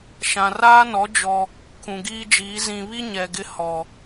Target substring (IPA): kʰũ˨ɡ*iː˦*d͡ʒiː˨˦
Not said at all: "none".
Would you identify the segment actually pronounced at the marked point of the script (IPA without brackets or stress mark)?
iː˦